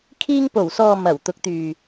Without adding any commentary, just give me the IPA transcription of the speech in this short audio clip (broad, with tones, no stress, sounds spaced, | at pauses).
kʰ iː˧ ŋ p o˨˩ w s ɔː˨ m ɐ˨˩ w t̪ ʊ˨˥ k̚ t̪ yː˨